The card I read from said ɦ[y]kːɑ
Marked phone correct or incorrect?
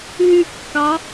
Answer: correct